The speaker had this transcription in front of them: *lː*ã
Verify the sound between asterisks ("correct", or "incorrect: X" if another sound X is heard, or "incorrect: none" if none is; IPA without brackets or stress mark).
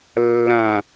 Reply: correct